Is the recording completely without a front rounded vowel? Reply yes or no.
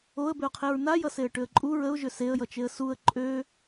no